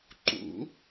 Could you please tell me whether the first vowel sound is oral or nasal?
oral